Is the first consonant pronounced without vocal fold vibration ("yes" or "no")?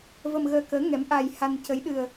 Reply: no